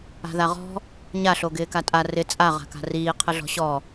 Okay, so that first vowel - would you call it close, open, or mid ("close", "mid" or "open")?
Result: open